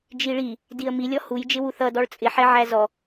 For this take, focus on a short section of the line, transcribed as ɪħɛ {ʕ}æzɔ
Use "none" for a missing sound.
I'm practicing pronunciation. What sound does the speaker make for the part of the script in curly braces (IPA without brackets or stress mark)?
ʕ